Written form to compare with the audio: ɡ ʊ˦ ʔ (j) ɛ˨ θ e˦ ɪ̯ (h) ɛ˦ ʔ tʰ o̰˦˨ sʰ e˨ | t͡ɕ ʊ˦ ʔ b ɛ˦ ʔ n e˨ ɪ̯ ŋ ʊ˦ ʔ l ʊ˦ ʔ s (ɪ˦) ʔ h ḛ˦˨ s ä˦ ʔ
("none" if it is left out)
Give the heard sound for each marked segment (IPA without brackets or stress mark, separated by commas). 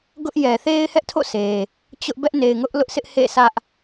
j, h, ɪ˦